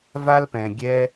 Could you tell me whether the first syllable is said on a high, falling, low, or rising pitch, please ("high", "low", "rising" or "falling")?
high